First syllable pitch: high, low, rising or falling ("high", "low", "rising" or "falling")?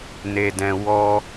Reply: low